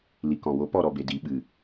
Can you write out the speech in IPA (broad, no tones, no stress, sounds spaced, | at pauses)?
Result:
l i k ɔ̃ w o p ɔ ɾ ɔ b e d i ɓ ɨ